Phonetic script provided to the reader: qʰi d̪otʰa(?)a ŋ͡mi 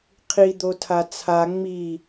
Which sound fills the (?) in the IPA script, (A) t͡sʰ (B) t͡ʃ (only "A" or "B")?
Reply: A